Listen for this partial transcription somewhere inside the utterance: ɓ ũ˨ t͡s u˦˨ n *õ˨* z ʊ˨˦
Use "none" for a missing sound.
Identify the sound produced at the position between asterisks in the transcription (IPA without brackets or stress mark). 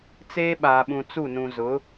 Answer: ũ˨